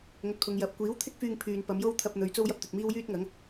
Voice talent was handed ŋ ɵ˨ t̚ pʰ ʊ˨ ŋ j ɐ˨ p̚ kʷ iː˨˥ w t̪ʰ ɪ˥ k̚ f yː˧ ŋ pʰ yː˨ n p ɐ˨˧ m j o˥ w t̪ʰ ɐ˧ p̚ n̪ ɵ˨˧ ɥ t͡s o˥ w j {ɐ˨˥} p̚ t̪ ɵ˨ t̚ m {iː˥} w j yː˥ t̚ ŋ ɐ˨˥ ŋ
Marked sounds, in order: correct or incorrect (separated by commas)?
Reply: incorrect, correct